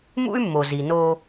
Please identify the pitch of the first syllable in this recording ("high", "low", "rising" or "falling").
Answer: high